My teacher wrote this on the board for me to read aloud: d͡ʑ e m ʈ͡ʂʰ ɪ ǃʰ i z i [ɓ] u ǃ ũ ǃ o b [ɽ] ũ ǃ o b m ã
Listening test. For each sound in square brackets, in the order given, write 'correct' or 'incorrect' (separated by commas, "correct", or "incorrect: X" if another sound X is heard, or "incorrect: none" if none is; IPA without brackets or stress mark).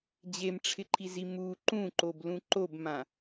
incorrect: m, incorrect: l